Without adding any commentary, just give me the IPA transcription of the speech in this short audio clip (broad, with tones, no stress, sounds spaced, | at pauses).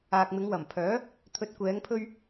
aː˨ k̚ m ɪ˨˧ ŋ w ɐ˨˩ m pʰ œː˨˥ | t̪ʰ ɵ˨˥ t̚ kʷ ɛː˨˧ ŋ pʰ ɵ˧ ɥ